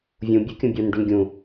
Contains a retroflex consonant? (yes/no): yes